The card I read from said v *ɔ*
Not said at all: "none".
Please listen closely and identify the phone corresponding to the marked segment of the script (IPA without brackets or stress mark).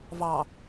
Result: ɑ